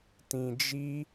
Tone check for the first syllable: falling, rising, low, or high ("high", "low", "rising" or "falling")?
low